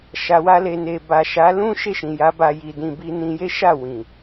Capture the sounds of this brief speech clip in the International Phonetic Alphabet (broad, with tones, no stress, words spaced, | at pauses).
ʃa˧wa˦le˧ne˧ ba˨ʃa˨˦lũ˦ ʃe˦˨ʃĩ˨ja˨˦ ba˧ji˧dĩ˧ bi˧nĩ˧je˦ʃa˦˨ wĩ˨